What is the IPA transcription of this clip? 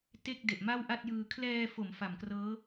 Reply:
te˥˩k̚ de˨˩ʔma˥˩wʔa˥˩t̚jɯː˧ kʰlɛː˧fo˩˦m fa˨˩mkrɤː˦˥

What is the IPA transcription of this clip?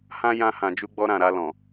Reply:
hã˦jã˧ hã˨d͡ʒu˧ɡ͡bɔ˧ ɾã˨ɾa˧ lɔ̃˨

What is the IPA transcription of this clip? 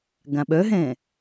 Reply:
ɡãɓœɦɛ̃

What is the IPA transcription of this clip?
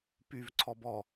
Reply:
pyv ǀʰɔbɔ

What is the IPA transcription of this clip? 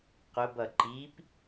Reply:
qʊbʌ ǃip

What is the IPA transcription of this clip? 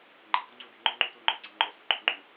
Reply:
ŋ͡ǃe̤du ŋ͡ǀude̤ŋ͡ǃo ŋ͡ǃutʷæ̃ŋ͡ǃøɡ͡ǀæ̃ ŋ͡ǃo so̤ǃo̤ŋ͡ǃũ

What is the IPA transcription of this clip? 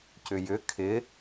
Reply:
cʏjʏ kʰɪ

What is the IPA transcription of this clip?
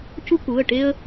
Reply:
cu˦ku˩˧˩ə̯ʈe˦ə̯

